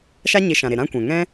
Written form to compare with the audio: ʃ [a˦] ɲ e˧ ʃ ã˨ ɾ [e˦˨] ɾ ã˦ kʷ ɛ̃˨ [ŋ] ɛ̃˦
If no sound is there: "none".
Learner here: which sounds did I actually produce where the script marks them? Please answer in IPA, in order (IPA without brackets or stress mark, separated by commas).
a˦, e˨, ŋ